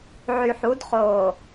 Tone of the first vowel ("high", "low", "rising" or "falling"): low